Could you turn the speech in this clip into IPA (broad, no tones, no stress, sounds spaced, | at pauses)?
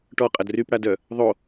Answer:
ʈ ɔ qʼ ɐ d r y p ɽ a d œ | ðˤ o